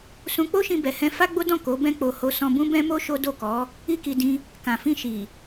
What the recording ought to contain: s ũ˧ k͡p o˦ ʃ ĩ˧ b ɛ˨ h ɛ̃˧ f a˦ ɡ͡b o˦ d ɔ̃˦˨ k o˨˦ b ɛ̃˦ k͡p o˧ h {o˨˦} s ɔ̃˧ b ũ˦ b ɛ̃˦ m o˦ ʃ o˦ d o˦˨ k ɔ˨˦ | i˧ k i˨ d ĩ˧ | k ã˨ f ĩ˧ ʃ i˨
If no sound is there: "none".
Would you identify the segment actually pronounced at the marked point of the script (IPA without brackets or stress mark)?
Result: o˧